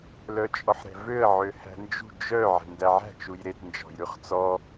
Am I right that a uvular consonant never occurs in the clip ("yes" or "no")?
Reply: no